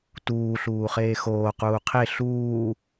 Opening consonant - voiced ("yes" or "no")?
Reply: no